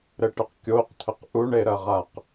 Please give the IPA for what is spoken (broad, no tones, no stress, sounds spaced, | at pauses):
ɾ ɘ ʈ ɘ q kʲ o q t̪ʰ ə q ʔ u ɳ e ɾ ɐ ʁ a q